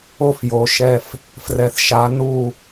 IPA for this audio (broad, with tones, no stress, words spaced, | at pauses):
o˦fjo˨ ʃɛ˦˨f | frɛ˨θʃa˨˦ nu˦˨